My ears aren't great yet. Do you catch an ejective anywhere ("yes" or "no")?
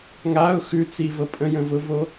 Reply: yes